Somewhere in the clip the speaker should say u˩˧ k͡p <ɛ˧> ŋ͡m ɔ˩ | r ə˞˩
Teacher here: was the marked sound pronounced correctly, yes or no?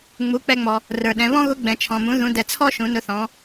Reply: yes